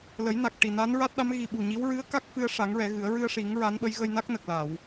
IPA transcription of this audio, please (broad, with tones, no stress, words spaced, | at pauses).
lə˨˩˦jna˨˩k̚ʈi˨˩ na˧˥nɹa˦˥t̚ɗa˧˥m ɣi˨˩ɓu˨˩ ɲi˧˥w ɹɨ˧˥ə̯ ka˦˥k̚fɨ˧ə̯ʂa˨˩˦ŋ ɹɛ˨˩˦ɣɨ˨˩˦ə̯ ɹɨ˧ə̯ʂi˨˩˦ŋ ɹa˧˥nɓə˧˥j ɣə˧jna˦˥k̚ nə˨˩k̚la˨˩˨w